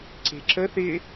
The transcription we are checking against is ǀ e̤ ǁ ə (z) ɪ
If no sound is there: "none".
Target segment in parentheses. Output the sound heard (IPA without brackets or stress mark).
θ